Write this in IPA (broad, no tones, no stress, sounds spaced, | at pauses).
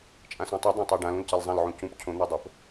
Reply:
t͡ʃʼ ã s õ tˤ u dˤ ã tˤ o ɖ ã l ũ l c a l zˤ ã l ʕ ũ c ũ p cʰ õ n̪ ɵ dˤ o p